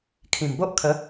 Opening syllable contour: low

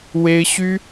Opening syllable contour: high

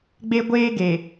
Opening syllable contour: high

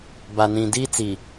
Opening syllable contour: low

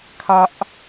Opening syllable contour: high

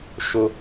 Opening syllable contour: high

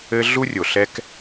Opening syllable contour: high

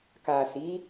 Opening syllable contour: low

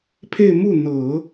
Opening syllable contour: falling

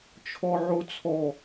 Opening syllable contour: high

